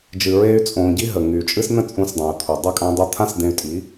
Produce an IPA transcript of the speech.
d͡ʒ ɨ˨ ɹ eː˧ y̯ t͡sʼ õː˨ ɟ i˦ ɦ ə˨ ŋ yː˨ t͡ʃʼ ɨ˦ s n ə̃˦ t͡sʼ ũ˧ s dˤ ẽ˨ u̯ t̪ʰ u˨ dˤ ɐ˦˨ kʼ ã˧ dˤ o˧ t̪ʰ ã˦ s d̪ ẽ˧ y̯ tʼ i˨˦

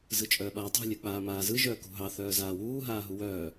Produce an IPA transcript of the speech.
z ɯ t͡ʃʼ œː ɓ aː tˤ ṳ lʲ œ k͡p aː m aː z ɯ ʒ œː k ṳ ɦ ɑ θ œː z aː w uː ɦ aː ɦ u w œː

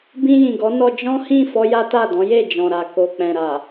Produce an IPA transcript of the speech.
b ĩ˧ j ĩ˨ ɡ ɔ˨˦ n ɔ˧ d͡ʒ ɔ̃˦ h ĩ˦˨ f ɔ˧ j a˦ t a˦˨ d ɔ̃˨˦ j e˦˨ d͡ʒ ɔ̃˨ ɾ a˨ k o˨ k͡p ɛ̃˨ ɾ a˨

